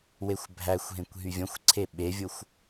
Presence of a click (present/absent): present